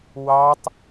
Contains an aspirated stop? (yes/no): no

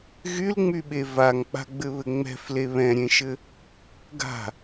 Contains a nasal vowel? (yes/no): yes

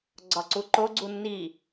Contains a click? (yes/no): yes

